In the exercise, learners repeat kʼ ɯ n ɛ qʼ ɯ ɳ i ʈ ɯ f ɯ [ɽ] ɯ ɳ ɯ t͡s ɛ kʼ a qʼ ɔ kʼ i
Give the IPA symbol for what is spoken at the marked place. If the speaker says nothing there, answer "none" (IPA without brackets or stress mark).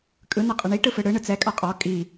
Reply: ɽ